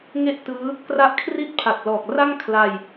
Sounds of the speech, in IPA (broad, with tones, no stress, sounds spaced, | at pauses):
ŋ e˥˩ ʔ t ɯː˦˥ | k r a˦˥ ʔ kʰ r i˥˩ t̚ pʰ a˨˩ t̚ l ɔː˨˩ k̚ r a˥˩ ŋ kʰ l a˧ j